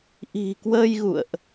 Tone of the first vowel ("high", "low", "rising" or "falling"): low